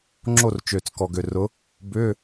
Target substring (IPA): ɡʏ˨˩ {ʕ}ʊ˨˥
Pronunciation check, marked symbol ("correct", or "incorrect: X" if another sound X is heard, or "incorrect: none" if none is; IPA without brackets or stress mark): incorrect: r